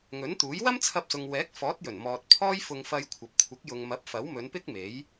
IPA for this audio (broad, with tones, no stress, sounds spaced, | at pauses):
ŋ ɵ˨˥ n t̪ uː˨˥ j w ɐ˥ m t͡sʰ ɐ˧ p̚ s ʊ˨ ŋ w ɛː˨˥ k̚ f ɔː˨˥ t̚ j ɵ˨˩ n m ɔː˨ t̚ pʰ ɔː˥ j f ʊ˧ ŋ f ɐ˧ j kʷʰ ɐ˨ p̚ kʷʰ ɪ˨˥ k̚ j ʊ˨ ŋ m ɐ˨˥ p̚ f ɐ˨˥ w m ɵ˨˧ n p ɪ˥ k̚ m e˨˥ j